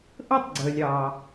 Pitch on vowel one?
high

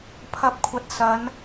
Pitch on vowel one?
rising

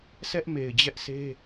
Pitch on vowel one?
high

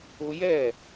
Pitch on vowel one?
high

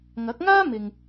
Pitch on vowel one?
rising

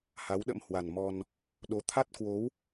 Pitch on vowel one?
rising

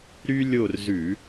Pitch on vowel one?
high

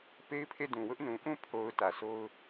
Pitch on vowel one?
high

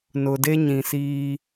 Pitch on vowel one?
low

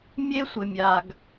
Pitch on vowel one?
high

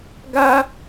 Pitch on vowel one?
high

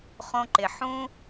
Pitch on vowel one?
high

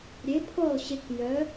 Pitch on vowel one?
rising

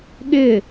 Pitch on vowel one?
falling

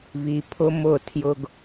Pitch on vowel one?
low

